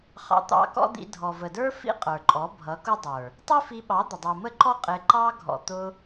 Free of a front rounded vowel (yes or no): yes